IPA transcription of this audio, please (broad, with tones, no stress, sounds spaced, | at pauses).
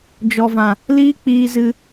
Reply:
d͡ʒ ɔ˨ v ã˨ | l iː˦ k͡p iː˧ z ɨ˧